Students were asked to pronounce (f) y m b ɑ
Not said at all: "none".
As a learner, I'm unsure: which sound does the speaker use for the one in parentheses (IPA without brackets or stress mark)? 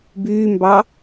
b